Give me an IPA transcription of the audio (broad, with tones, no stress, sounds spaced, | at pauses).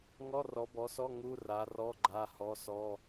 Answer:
ŋ ɔ˧˥˧ r ɔ˨˦ b ɔ˨˦ s ɔ˧˥˧ ŋ u˧˥˧ r a˨˦ r ɔ˧˥˧ ɡ͡ǃ a˧˥˧ h ɔ˧˥˧ s ɔ˧˥˧